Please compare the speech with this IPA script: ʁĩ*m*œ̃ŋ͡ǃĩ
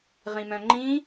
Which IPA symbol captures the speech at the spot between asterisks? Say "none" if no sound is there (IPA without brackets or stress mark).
m